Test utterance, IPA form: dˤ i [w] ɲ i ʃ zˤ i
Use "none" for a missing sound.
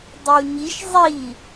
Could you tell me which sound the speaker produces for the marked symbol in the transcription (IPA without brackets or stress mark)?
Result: w